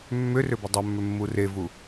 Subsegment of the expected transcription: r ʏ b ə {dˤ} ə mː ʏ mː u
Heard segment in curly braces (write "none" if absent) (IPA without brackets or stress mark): dˤ